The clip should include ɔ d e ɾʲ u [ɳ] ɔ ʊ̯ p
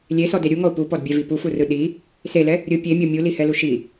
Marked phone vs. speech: incorrect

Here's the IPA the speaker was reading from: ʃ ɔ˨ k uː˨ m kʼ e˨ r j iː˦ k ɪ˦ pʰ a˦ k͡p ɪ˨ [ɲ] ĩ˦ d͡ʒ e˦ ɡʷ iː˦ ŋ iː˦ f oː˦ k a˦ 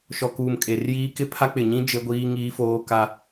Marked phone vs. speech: correct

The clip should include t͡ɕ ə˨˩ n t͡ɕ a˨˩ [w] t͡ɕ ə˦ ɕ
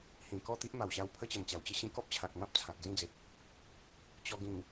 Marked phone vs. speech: correct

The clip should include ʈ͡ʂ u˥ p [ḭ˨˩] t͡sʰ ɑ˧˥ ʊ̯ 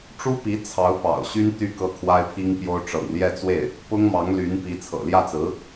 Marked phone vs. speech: incorrect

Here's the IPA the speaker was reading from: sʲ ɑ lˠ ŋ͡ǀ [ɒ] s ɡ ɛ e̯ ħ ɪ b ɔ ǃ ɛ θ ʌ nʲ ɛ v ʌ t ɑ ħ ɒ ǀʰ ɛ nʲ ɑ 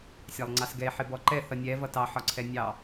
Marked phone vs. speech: incorrect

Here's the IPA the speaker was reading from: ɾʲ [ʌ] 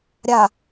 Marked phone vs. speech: incorrect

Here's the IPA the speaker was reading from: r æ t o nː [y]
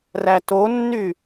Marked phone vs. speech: correct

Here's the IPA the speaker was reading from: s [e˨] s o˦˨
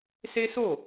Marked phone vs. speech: incorrect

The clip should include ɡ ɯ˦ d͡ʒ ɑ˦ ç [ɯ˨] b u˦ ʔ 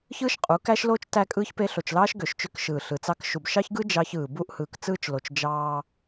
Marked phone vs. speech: incorrect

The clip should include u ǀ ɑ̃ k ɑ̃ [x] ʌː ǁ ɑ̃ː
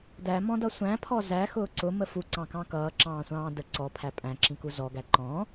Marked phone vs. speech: incorrect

